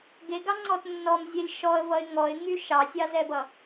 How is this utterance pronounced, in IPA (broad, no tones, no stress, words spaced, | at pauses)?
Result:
ɡeɡɑŋ͡ǀɔt nːɔmzʲɛlʲ ʃɔə̯vʌɪ̯ ŋɔɪ̯ŋy ʃɑsʲɑzɛbʌ